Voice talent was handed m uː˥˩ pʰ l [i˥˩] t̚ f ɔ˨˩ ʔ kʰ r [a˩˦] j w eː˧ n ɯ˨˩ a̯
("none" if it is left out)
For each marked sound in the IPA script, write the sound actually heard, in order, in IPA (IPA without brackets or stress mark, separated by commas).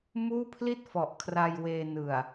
i˥˩, a˧